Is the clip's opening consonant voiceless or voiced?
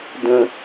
voiced